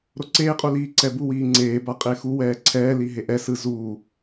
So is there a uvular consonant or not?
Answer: yes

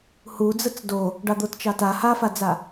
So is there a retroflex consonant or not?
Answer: yes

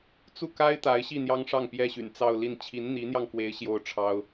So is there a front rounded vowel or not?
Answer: yes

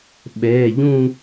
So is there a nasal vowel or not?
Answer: yes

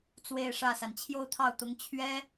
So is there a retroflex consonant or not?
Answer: yes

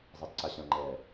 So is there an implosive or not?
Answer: no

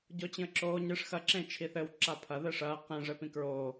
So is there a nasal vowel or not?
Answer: yes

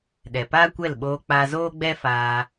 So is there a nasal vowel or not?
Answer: no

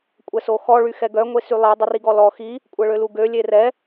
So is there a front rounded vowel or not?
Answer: yes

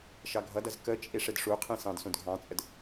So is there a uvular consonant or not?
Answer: yes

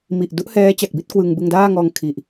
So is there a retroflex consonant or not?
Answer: no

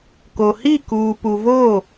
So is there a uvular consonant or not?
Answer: no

